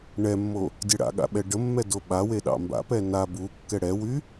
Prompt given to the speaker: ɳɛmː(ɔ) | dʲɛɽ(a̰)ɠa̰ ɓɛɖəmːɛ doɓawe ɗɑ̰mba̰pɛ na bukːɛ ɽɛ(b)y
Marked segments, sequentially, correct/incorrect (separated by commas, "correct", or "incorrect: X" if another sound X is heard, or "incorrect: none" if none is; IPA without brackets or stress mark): incorrect: o, correct, incorrect: w